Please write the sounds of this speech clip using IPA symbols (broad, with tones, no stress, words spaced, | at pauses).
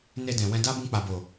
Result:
ne˧dɛ̃˨ wɛ̃˧da˦ bũ˧k͡pa˨bo˨